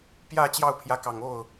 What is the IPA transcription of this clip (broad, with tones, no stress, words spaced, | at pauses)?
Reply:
pjä˥˧ t͡ɕjɑ˥˩ʊ̯pʰjä˧˥kɑ˨˩ŋo˥˩ʊ̯